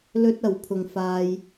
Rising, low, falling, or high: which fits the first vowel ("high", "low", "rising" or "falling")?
high